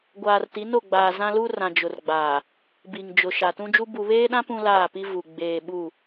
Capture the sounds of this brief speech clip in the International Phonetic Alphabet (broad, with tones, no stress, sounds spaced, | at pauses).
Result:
ɡʷ aː˨ r t i˨˦ n o˦˨ ɡ͡b aː˨ z ã˦ l u˦ r ã˨ d͡ʒ ʊ˨ r ɡ͡b aː˨ | b i˨ ŋ d͡ʒ ʊ˨ ʃ a˨ t ũ˦ d͡ʒ u˦ b u˨ β eː˦ ɗ ã˦ p ũ˦ l aː˦˨ p i˦ v u˨ ɡ͡b eː˨ ɓ u˦˨